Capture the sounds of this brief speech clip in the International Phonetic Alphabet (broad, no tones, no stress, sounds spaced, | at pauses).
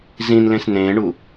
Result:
z ĩ n l ẽ s n ẽː ɳ u